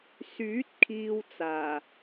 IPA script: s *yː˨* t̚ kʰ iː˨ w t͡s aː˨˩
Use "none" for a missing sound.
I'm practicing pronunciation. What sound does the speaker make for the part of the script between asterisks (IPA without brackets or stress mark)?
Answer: yː˨˥